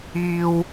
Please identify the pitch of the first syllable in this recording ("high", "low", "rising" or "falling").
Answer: high